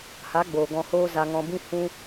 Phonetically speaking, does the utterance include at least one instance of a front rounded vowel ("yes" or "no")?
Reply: no